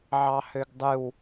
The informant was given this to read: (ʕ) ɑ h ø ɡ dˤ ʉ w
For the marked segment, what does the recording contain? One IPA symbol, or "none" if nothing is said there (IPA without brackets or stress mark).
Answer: ʕ